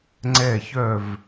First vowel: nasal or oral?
oral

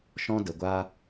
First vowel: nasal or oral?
nasal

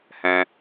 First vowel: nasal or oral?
nasal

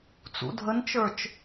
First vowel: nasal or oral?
oral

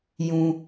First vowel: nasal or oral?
nasal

